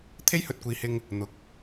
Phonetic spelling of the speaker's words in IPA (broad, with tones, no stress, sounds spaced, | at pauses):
t̪ʰ e˥ j h ɵ˧ t̚ kʷ iː˨ h ɪ˧ ŋ | n̪ ʊ˨˥ k̚